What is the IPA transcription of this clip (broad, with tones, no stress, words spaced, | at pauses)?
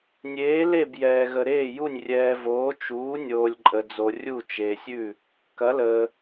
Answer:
nʲeː˧˥ le˥˧b jɛː˧ɣə˧ɾeː˥˧ju˥˧nʲ rʲɛː˧voː˧˥ t͡ʃuː˧˥ nʲoː˧lʲǃʼə˧d͡zo˧ rʲu˥˧ t͡ʃeː˧sʲʉ˥˧ | kɐ˧˥ləː˧